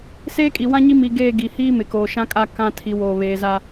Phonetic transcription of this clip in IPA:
s eː˦ kʼ i˨ w ã˦ ɲ i˦ m i˨ ɡ eː˦˨ ɡ i˨ h iː˦ m ɪ˨ k oː˨ ʃ ã˦ kʼ a˦˨ k ã˦˨ tʰ i˨ w oː˨ β eː˨ z a˦

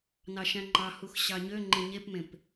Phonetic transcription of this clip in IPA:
n ɑ ʃ æ̃ ŋ͡ǃ ɑ h u x ɕ ɑ ɲ ø ŋ͡ǃ ẽ ɲ e p m ẽ p

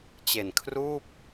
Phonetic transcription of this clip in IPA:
t͡ɕ e˨˩ n kʰ r uː˥˩ p̚

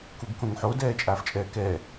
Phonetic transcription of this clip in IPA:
k u ɡ k õ ŋ ħ o d ɛː t͡ʃʼ aː f t͡ʃʼ ɛː k ɛː

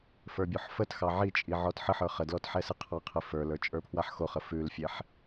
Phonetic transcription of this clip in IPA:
f ə˞ bʲ o ħ f ə t x ɑ ʕ i t͡ʃʼ i ʕ ɔ t ħ ə ħ ə˞ χ ə d l ɔ t ħ ɛ s ɨ qʰ ɑ qʰ ɨ f ə˞ l ə˞ t͡ʃʼ ə˞ pʰ w a ħ x o χ ə f ʉ l fʲ ɛ ħ

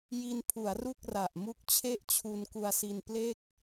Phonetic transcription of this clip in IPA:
j i˧ n pʰ u˩˦ a̯ r u˥˩ k̚ r a˨˩ ʔ m u˦˥ k̚ t͡ɕʰ e˥˩ ʔ t͡ɕʰ u˧ n k u˧ a̯ s i˧ n p l e˥˩ k̚

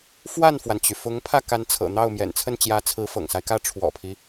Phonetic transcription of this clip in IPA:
f w a˥˩ n f w a˩ n t͡ɕ y˩ f ʊ˧˥ ŋ pʰ ä˥˩ k a˧˥ n t͡sʰ ɤ̰˨˩ n̪ ɑ˥˩ ʊ̯ m j ɛ̰˨˩ n t͡sʰ ə˥˩ n t͡ɕ j ä˧˥ t͡sʰ ɹ̩˧˥ f ɤ̰˨˩ ŋ s a˦ ɪ̯ k ä˥˩ ʈ͡ʂʰ w ɔ̰˨˩ pʰ i˦

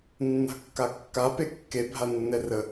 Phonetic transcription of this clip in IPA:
nː a̤ kː a kː a p e kː e bʱ a nː ɛ r ə

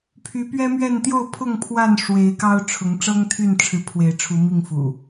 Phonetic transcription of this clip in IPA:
pʰ y˨˦ p ɥ ɛ˦ m ɥ ɛ˥˨ n t̪ j o˥˨ ʊ̯ pʰ ʊ˥˨ ŋ pʰ w a˥˨ n ʂ w e˨˦ ɪ̯ k ɑ˦ ʊ̯ ʈ͡ʂʰ ʊ˨˦ ŋ ʈ͡ʂ ɤ˦ ŋ t̪ʰ y˥˨ n ʈ͡ʂʰ ɻ̩˨˦ pʰ w e˨˦ ɪ̯ ʈ͡ʂʰ u˨˦ m i˥˨ ŋ f ṵ˨˩

